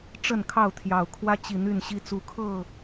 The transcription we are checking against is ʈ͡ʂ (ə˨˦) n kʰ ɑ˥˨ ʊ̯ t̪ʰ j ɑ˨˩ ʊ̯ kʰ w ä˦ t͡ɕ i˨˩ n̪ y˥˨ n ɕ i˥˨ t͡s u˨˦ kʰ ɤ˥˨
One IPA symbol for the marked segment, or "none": ə˥˨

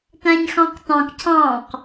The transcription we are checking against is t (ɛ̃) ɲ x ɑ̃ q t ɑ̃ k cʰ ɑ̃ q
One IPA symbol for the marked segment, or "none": æ̃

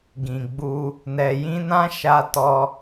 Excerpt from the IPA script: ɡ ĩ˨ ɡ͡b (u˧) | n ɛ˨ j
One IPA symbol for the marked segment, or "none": u˧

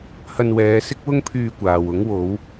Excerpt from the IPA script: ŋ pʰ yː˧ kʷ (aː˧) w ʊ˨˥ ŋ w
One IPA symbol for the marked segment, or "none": aː˨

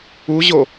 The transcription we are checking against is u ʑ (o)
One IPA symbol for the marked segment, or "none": o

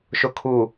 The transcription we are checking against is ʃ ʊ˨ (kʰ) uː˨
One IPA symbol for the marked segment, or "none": kʰ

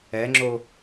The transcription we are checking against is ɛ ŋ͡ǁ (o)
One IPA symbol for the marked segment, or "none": o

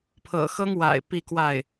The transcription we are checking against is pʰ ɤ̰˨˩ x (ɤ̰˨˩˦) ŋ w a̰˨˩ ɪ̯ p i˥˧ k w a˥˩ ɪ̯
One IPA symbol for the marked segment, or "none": ɤ˥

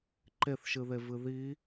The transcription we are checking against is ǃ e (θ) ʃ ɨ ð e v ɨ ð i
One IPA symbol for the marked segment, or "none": θ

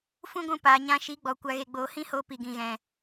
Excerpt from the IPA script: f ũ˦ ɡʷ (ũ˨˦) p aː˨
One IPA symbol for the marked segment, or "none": ũ˧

